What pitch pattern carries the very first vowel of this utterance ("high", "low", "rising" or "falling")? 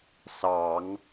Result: low